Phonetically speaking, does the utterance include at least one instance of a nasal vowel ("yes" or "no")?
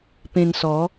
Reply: yes